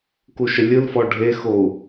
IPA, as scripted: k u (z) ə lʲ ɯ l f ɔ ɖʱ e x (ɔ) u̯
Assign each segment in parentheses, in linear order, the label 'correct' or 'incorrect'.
incorrect: ʃ, incorrect: o

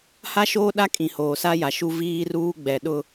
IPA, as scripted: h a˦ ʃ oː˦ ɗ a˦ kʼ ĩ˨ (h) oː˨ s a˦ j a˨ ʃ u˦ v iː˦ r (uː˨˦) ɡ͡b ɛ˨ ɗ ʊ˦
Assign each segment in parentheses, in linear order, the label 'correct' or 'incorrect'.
correct, incorrect: uː˦

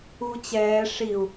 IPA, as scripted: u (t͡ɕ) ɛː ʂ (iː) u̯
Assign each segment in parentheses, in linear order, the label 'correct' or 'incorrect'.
correct, incorrect: i

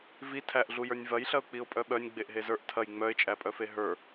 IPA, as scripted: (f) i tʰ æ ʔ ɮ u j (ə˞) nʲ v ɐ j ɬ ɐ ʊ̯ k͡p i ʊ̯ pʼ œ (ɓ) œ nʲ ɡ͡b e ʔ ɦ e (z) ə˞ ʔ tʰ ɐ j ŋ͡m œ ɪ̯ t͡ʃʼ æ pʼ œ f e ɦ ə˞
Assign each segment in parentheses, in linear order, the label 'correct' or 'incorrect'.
incorrect: v, correct, correct, correct

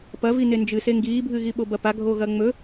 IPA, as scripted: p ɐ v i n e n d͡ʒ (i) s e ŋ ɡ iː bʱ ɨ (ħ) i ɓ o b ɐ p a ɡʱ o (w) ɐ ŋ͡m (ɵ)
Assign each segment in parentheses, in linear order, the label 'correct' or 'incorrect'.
incorrect: ɨ, incorrect: ɣ, incorrect: ɣ, correct

